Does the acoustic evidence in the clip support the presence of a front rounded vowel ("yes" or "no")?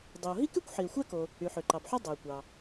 yes